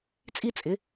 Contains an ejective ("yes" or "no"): yes